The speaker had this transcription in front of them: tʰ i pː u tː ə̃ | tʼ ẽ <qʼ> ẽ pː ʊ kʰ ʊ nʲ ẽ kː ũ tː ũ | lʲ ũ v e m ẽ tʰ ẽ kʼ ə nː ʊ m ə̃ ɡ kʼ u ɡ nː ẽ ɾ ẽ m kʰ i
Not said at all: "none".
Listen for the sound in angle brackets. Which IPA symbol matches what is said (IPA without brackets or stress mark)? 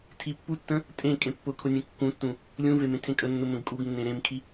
kʼ